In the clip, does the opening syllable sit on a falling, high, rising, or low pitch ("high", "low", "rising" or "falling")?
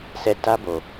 falling